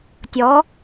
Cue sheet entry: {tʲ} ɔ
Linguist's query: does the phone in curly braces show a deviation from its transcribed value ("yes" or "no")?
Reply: no